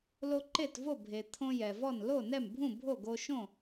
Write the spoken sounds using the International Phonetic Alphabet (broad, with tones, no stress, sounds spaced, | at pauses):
l o˦ ǃ e˥˨ t v o˥˨ bʱ e˨ t̪ʰ õ˦ j ɛ˨ v ɔ˥˨ n l o˥˨ n ɛ˥˨ m bʱ ũ˥˨ bʱ o˥˨ ɡ o˦ ʃ õ˥˨